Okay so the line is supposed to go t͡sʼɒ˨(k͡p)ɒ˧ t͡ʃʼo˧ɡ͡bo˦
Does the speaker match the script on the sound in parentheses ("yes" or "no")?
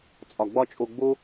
no